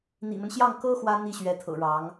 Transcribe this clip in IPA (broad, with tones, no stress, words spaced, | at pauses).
n̪ḭ˨˩mə˦nɕjɑ˥˩ŋ kɤ˥ xwä˥n̪i˥˩ ɕɥɛ˧˥t̪ʰɤ̰˨˩ ɻɑ˧˥ŋ